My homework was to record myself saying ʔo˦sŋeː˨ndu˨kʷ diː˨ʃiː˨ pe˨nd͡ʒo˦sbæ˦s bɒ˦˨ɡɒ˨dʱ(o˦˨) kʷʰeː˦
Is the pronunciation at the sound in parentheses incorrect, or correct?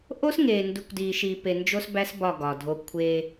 incorrect